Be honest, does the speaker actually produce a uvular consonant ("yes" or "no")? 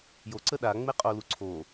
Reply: yes